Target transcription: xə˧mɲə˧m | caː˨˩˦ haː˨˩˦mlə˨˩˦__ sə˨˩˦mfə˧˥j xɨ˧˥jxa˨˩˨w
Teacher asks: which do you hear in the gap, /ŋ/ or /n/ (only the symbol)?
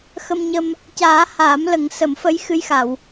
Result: ŋ